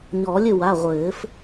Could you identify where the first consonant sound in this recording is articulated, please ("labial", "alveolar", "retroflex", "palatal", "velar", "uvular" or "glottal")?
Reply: palatal